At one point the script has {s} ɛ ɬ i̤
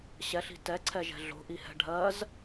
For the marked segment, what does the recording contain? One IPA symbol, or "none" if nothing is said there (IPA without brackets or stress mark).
ɕ